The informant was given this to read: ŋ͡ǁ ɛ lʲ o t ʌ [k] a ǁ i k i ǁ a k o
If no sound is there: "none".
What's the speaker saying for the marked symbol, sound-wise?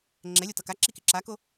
k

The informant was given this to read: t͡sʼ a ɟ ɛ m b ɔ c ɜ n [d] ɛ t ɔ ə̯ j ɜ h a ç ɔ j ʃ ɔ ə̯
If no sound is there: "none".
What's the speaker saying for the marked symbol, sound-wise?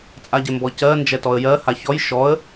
d͡ʒ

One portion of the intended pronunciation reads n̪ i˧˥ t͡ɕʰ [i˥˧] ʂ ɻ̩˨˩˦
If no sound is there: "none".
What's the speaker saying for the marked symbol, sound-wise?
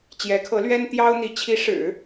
i˧˥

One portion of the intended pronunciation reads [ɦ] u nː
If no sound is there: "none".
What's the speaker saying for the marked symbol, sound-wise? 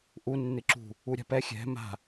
ʔ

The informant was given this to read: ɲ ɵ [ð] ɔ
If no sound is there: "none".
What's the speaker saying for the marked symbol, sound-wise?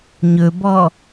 b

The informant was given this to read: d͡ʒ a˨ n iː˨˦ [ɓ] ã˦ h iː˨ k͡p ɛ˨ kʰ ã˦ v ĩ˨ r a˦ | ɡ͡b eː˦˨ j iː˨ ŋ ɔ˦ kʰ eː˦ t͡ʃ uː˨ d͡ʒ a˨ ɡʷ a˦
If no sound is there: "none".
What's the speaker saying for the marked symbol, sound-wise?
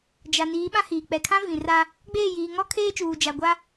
ɓ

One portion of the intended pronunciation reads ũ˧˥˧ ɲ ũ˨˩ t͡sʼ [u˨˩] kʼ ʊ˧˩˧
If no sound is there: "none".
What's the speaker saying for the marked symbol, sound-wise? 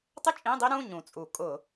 u˧˩˧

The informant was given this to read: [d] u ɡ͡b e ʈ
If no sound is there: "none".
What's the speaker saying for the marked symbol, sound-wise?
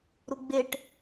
ɾ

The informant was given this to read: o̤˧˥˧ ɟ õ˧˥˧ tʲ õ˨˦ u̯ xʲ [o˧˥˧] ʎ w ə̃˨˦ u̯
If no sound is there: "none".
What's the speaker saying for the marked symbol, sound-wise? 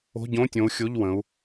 o˧˥˧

